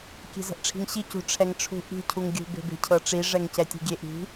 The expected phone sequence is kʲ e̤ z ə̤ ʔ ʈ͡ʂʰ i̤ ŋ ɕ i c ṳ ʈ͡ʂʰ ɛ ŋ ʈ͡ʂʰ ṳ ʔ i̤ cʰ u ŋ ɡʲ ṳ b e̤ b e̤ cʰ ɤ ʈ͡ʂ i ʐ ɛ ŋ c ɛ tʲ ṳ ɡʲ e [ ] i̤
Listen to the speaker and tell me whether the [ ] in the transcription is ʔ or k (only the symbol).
ʔ